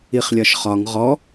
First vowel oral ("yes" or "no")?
yes